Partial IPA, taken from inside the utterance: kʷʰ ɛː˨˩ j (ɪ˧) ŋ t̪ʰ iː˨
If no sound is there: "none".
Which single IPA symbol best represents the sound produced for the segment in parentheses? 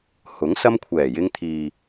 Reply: ɪ˧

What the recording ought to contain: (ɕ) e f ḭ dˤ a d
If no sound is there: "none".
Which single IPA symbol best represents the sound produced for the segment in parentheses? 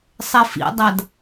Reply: sˤ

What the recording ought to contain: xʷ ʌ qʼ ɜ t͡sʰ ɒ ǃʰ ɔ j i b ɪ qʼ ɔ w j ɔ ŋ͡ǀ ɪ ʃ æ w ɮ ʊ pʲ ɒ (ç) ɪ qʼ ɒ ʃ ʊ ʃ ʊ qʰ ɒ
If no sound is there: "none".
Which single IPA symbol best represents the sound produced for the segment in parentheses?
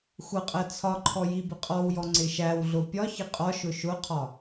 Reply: ç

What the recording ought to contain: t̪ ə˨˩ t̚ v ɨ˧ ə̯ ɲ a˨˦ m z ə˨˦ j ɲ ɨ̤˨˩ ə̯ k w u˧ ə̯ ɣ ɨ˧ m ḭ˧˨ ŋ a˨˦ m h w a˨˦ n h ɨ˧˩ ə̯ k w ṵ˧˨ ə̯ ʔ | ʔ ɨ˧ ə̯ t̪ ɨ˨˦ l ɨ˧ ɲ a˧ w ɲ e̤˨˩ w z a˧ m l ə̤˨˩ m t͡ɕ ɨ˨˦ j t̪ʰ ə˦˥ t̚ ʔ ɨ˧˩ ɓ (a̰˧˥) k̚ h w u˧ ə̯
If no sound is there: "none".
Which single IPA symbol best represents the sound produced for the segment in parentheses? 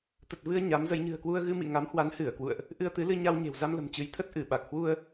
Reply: a˨˩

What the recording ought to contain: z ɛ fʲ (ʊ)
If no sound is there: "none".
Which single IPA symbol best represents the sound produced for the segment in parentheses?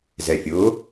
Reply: ʊ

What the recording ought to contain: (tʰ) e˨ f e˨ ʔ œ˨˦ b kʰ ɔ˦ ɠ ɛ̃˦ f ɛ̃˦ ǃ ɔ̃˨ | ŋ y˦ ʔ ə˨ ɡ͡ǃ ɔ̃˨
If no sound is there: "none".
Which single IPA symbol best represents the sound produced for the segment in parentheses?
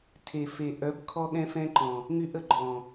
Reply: tʰ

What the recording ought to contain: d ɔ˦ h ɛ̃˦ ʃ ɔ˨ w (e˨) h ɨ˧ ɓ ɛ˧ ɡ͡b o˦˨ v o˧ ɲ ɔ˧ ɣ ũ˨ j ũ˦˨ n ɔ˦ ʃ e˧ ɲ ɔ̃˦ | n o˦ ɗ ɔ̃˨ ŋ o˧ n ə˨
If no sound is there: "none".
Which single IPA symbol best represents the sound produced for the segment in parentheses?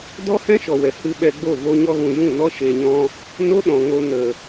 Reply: ɛ˨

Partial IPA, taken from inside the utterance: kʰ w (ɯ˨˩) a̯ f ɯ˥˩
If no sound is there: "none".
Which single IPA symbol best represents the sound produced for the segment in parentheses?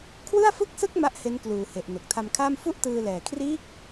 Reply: ɯ˥˩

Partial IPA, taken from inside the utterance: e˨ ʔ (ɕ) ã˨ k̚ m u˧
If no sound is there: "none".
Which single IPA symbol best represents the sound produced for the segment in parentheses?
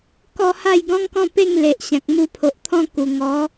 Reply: ɕ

